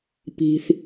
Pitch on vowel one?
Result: low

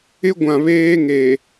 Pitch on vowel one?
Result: high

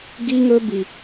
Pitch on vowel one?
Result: high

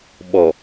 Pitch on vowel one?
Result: low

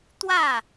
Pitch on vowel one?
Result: falling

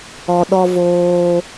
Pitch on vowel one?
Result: low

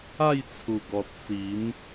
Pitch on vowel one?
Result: falling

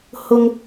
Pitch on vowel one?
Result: low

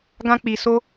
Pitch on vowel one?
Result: high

